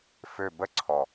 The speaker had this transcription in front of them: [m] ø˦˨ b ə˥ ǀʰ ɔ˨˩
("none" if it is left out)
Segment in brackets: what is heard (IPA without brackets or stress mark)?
f